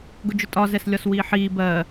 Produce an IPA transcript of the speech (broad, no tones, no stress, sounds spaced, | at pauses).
ɡ ʊ d͡ʒ ʊ tʼ ɒ z ɛ s lʲ ɒ s w iː ħ iː b ɜ